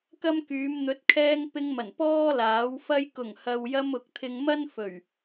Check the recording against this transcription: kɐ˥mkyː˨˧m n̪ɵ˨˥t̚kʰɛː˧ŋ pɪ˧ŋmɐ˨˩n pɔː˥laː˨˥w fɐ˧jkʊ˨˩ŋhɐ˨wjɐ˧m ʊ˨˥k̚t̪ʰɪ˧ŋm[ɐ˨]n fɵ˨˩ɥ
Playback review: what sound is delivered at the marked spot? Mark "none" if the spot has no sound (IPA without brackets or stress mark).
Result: ɐ˥